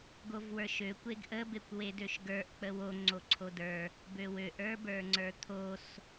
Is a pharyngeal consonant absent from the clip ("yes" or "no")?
yes